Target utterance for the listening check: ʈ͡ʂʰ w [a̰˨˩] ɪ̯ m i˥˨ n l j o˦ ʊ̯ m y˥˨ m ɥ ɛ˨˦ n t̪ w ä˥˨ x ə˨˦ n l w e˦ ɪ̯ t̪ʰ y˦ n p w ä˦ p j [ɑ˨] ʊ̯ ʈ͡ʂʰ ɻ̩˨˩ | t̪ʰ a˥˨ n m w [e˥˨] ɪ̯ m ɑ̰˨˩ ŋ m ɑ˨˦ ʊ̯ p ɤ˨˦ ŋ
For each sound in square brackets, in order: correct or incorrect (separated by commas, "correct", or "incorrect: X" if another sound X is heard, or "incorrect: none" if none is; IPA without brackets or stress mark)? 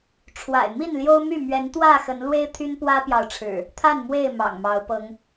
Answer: correct, correct, correct